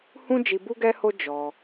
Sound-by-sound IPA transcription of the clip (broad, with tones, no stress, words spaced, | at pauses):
hũ˦ d͡ʒi˧bu˦ɡɛ˦ho˦ d͡ʒɔ˧